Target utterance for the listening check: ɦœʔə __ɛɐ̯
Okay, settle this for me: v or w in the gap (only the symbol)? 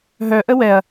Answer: w